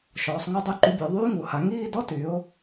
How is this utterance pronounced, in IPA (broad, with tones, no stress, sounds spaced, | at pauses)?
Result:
ʃ ɔː˩˧ sˤ ŋ u˥˩ dˤ y˥˧ ǃ y˨˥ bʲ o˩˧ ðˤ yː˥ ŋ u˩˧ h a˩˧ ŋ iː˥˧ d ɔ˥ t y˨˥ ʊ̯